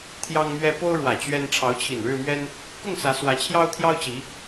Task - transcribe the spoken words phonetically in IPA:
t̪ʰjɑ˦ŋmɥɛ˦ po˦ʊ̯ɻwä˨˩ t͡ɕɥɛ˦n ʈ͡ʂʰɑ˨˦ʊ̯t͡ɕʰi˨˩nɻɻ̩˥˨mɥɛ˦n | kʊ˥˨ŋ sä˨˦swä˨˦t͡ɕʰjɑ˦ʊ̯ t̪ʰjɑ˦ʊ̯t͡ɕi˨˦

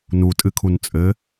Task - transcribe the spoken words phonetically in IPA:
nutʼɨkʰun t͡sʼɘ

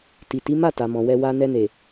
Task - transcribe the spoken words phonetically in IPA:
ti˨ti˨˦ma˦˨ ta˨mɔ̃˨wɛ˧ wa˧ nɛ˧ne˨

